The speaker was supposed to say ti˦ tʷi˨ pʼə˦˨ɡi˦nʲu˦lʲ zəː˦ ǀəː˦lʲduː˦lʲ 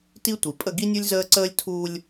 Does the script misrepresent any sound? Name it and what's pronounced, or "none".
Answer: d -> tʰ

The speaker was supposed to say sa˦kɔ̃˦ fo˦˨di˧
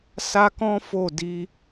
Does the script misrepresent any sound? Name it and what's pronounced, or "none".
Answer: none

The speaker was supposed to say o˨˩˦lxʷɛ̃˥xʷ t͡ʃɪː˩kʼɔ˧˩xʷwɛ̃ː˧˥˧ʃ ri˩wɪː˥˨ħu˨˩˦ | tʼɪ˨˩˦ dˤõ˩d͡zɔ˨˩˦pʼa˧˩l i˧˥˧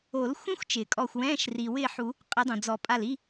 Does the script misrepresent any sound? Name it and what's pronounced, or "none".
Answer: tʼ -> qʼ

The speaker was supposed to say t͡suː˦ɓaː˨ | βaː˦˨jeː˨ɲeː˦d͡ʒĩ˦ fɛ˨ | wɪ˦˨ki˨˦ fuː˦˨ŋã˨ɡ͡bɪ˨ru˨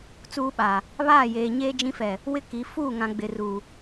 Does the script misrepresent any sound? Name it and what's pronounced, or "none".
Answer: u˨ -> uː˨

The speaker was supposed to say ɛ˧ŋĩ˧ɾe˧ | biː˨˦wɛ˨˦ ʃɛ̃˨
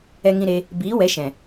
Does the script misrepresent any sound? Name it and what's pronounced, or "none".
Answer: none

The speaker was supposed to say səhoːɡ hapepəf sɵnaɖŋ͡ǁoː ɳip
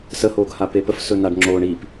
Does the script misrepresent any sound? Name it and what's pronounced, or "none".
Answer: none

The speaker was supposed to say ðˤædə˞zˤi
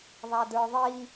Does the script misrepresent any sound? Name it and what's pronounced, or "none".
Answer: zˤ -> ðˤ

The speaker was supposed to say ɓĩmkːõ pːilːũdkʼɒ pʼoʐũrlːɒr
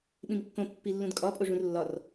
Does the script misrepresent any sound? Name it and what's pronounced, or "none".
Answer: none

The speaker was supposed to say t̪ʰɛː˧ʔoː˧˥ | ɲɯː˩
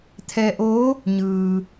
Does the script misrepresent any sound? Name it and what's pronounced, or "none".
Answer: none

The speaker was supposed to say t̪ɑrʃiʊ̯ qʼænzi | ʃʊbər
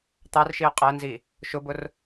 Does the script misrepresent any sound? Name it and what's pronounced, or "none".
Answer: ə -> ʊ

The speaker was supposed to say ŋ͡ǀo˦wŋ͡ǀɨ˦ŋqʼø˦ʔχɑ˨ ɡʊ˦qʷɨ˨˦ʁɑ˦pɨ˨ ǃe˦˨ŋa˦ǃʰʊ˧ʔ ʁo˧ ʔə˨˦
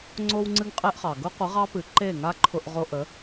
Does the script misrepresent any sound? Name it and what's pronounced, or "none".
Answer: ø˦ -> e˦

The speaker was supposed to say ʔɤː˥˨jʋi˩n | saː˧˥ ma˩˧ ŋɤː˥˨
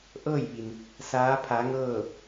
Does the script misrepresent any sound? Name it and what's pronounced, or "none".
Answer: m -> pʰ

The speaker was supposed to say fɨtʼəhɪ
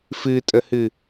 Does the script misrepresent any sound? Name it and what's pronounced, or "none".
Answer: ɪ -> ɨ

